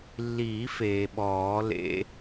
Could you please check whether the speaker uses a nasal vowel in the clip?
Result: no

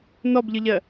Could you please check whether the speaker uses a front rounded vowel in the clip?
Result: no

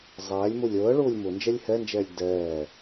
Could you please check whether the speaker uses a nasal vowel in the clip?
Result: no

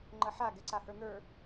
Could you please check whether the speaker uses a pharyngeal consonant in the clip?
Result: yes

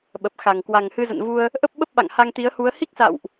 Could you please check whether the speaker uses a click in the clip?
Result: no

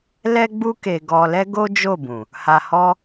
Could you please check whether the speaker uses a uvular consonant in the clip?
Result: no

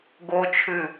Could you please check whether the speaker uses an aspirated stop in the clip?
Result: yes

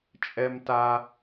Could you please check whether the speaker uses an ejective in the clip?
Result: yes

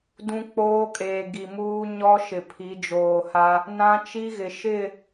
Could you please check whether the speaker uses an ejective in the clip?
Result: yes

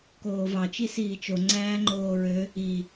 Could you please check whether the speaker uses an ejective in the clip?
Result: no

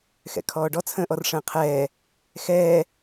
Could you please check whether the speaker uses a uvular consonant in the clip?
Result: yes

